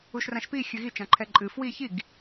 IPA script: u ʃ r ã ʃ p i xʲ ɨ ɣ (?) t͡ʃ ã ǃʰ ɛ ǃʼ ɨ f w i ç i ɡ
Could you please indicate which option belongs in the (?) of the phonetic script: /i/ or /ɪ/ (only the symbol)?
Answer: i